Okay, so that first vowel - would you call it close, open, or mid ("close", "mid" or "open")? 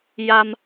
open